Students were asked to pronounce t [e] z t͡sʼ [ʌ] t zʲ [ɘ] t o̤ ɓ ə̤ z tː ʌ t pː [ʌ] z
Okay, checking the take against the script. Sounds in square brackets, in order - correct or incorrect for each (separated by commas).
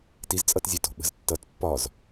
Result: incorrect, correct, incorrect, incorrect